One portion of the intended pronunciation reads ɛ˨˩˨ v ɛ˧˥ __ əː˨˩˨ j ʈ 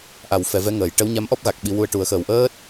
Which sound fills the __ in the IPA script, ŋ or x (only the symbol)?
ŋ